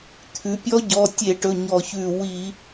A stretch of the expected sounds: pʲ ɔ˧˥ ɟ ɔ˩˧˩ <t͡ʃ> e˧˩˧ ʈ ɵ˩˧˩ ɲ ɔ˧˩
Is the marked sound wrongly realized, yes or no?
yes